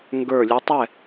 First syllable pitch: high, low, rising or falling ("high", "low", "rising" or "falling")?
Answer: low